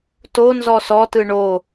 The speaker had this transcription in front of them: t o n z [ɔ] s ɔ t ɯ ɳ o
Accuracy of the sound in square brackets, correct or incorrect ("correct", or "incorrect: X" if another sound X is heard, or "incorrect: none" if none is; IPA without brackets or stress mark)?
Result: correct